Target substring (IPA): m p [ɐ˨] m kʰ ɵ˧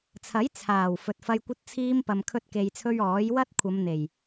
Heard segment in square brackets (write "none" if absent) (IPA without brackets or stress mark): ɐ˨